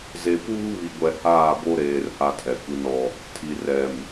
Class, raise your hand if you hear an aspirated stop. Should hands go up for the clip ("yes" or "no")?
yes